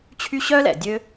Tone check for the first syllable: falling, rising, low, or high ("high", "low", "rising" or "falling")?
high